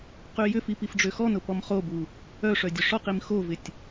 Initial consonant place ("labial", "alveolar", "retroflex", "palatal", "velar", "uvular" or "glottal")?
uvular